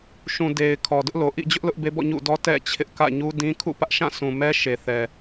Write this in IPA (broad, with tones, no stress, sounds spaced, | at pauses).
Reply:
ʃ ũ˨ d e˨ ɪ̯ kʰ ɔ˨ d ʊ˦ ʔ l o˨ ʔ ḭ˦˨ d͡ʑ ʊ˦ ʔ l ʊ˦ ʔ b e˦ b ɔ̰˦˨ ɲ ṵ˦˨ d ɔ˦ t ɛ̰˦˨ t͡ɕʰ ɪ˦ ʔ k ä̰˦˨ ɲ u˦ d ĩ˦ kʰ ṵ˦˨ p ä˦ ʔ ʃ ã˦˨ sʰ ũ˨ m ɛ˦ ʃ e˨ θ ɛ˨